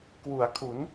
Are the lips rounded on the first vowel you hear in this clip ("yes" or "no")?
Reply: yes